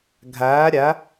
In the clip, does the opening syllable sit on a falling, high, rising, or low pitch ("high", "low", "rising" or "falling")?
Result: rising